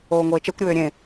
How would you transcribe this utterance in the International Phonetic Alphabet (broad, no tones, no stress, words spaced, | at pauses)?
oːŋʷeːt͡ʃɛkʷɾʲøː ɾʲẽ